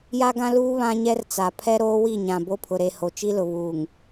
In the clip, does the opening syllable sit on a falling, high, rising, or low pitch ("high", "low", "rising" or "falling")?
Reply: high